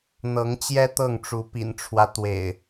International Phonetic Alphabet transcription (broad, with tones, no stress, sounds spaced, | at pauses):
n̪ ɤ˨˦ ŋ t͡ɕ j ɛ˦ t̪ ɤ˥˨ ŋ ʈ͡ʂ u˨˦ p ḭ˨˩ n ʈ͡ʂʰ w ä˦ t̪ w ḛ˨˩ ɪ̯